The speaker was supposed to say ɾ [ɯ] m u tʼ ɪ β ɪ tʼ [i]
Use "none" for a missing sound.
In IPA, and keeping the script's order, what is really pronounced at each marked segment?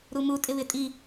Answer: u, i

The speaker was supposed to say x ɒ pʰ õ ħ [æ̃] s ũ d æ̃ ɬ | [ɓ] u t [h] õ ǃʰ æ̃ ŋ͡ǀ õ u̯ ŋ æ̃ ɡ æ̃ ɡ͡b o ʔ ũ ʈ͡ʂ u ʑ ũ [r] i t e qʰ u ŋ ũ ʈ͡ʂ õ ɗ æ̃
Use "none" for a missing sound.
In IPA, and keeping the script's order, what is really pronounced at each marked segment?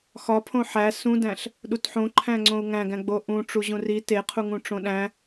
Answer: æ, ɗ, ħ, r

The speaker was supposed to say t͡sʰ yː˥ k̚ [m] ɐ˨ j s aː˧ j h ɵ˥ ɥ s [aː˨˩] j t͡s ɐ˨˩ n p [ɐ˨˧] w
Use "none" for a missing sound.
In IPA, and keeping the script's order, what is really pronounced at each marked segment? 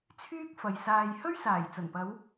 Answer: f, aː˨˩, ɐ˨˧

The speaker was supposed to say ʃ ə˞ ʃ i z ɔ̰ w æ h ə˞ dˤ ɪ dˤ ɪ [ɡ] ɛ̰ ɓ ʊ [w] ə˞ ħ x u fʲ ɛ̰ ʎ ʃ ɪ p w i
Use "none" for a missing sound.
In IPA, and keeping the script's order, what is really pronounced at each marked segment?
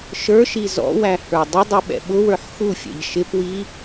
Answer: ɓ, w

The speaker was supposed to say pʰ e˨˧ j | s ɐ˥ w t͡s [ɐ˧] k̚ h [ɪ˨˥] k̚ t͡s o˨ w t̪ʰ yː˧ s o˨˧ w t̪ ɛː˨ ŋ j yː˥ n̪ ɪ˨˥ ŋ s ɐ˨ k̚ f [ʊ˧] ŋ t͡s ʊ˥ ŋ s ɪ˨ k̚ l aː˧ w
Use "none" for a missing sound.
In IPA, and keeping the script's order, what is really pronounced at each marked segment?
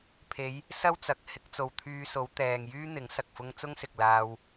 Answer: ɐ˨, ɪ˧, ʊ˥

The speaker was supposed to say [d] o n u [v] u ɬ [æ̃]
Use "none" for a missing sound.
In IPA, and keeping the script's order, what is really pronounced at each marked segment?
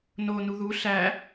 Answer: n, ð, æ

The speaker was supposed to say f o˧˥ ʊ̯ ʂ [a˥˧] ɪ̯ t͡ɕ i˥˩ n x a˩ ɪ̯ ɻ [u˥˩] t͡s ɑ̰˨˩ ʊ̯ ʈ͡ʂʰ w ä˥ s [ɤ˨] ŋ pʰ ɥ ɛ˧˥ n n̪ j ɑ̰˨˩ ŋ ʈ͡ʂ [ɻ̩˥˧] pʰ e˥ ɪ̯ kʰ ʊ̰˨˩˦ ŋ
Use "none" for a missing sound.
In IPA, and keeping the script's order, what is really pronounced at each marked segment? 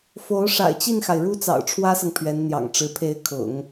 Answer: a̰˨˩, u˥, ɤ˨, ɻ̩˧˥

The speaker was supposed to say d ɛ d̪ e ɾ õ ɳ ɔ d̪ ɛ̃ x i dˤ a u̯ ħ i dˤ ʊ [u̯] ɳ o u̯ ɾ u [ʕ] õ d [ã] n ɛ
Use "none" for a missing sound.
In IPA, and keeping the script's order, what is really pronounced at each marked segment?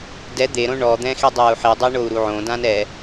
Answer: i̯, ʕ, ã

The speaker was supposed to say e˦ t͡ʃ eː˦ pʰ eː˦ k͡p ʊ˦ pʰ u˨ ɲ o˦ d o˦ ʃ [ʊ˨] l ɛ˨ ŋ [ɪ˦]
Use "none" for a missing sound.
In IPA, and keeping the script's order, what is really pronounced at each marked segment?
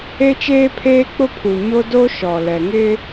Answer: ɔ˨, ɪ˦

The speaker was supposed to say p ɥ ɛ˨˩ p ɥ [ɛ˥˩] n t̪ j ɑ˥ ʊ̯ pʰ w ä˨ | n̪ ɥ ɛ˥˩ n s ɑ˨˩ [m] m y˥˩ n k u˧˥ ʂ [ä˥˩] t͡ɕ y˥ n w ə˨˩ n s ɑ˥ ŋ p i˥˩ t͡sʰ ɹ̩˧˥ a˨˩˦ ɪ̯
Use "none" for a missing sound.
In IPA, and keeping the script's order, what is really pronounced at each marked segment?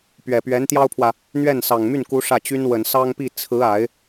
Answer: ɛ˧˥, ŋ, ä˥˩

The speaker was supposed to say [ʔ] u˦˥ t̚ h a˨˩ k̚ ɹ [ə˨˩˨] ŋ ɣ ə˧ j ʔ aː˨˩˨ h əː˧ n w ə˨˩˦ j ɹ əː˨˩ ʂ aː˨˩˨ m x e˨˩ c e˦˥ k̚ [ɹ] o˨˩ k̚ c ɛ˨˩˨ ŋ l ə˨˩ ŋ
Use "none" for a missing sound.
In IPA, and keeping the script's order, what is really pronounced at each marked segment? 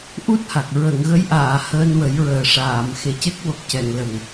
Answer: ʔ, ə˨˩˨, w

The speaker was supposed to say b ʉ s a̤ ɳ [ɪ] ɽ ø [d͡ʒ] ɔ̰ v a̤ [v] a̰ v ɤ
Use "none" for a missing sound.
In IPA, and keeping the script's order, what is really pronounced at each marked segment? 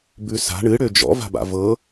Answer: ɨ, d͡ʒ, b

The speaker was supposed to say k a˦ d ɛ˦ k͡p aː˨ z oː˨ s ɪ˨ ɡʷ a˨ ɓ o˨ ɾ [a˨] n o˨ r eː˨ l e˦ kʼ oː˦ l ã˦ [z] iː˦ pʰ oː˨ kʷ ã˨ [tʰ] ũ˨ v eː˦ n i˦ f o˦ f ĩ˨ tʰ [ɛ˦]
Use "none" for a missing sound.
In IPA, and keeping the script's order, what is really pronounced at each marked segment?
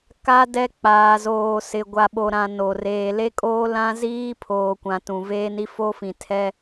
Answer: ã˨, z, t, ɛ˦

